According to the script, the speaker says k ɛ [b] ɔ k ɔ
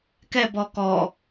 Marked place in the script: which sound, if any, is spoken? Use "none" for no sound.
b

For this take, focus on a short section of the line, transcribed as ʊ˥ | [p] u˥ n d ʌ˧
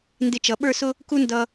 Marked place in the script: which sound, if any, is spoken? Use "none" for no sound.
k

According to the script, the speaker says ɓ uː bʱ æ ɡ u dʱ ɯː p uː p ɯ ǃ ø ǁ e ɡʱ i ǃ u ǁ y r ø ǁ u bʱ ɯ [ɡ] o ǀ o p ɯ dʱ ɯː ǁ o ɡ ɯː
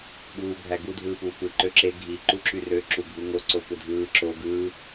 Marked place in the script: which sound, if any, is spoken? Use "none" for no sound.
ŋ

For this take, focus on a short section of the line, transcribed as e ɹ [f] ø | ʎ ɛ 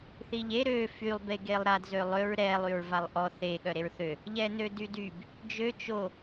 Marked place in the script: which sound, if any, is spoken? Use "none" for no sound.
θ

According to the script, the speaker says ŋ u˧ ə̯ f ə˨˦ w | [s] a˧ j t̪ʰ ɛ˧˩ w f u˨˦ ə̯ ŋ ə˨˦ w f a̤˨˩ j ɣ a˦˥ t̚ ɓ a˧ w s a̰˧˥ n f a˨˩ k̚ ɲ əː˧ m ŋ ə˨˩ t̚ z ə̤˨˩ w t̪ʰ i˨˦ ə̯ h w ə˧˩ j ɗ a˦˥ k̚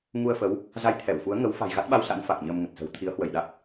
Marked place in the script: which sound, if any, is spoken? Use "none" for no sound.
z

